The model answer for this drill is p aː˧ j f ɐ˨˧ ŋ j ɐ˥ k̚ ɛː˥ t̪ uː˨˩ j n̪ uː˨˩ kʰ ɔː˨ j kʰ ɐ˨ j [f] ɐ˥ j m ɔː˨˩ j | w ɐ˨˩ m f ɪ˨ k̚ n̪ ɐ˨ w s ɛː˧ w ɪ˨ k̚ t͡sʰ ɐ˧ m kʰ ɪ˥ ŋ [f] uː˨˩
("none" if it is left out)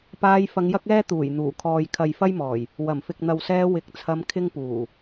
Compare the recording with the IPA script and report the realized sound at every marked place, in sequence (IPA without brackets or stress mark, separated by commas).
f, p